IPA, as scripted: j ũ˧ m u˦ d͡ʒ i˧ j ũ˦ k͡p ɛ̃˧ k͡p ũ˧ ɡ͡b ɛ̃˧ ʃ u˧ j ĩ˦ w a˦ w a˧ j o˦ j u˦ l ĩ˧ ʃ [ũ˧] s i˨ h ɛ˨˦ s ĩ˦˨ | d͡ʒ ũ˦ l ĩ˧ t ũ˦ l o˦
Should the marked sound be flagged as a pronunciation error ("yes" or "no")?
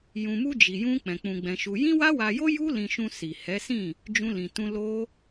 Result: no